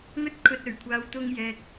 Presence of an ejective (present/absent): absent